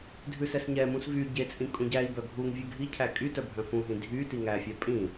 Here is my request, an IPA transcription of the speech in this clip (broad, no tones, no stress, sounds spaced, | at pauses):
dʱ ʉ s ɛ s ɲ ɛ m ũ s v y ɟ e t͡sʼ ĩ kʼ ũ ɟ æ i̯ b œ ɡʱ u ŋ vʲ ʉ ɡʱ i cʰ æ kʼ y t œ bʱ œ̃ f ũ ɦ ĩ dʱ y t i ŋ æ fʲ æ pʼ ĩ